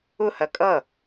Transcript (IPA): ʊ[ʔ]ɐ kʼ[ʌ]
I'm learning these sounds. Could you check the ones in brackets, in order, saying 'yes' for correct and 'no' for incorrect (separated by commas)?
no, yes